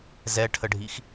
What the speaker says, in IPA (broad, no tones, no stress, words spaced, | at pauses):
zɛʈʰəɖʱix